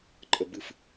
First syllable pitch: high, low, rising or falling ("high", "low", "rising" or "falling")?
low